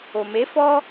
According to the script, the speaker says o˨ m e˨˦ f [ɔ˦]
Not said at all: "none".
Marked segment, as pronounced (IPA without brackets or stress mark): ɔ˦